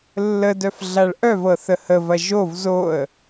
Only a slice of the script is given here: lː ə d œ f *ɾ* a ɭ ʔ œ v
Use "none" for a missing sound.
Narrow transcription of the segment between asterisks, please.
ɮ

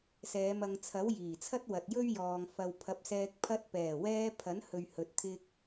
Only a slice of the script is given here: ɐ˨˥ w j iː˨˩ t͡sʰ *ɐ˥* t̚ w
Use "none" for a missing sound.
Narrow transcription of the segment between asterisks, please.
ɐ˥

